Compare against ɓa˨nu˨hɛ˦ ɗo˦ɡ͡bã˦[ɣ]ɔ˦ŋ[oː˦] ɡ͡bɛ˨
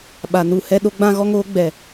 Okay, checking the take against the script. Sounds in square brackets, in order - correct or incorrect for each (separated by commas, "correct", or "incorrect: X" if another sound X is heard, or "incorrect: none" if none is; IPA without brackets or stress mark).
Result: correct, correct